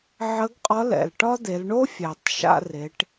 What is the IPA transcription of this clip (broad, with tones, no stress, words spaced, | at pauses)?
ʕə˧˥ɡqʼɒ˧˥lɛ̰˩lʈɒ˥ d̪e˩˧lɳo˥fʲæ˩tˤ ʃa̰˧re˩˧ʈ